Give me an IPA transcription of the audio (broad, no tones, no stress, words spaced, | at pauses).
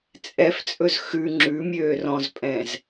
t͡sʼɛft͡sʼɵz xʉ ŋ͡ǁʉmʲøː rɔ̃zpʼɛ̃ːz